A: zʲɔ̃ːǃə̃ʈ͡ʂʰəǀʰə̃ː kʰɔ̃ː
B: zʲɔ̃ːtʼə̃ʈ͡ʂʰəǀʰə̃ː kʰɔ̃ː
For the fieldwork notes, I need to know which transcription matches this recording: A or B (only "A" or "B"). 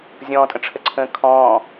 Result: B